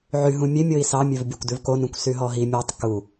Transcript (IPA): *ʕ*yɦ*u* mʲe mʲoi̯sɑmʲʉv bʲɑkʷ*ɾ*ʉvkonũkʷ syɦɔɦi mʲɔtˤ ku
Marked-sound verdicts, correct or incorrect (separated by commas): correct, incorrect, incorrect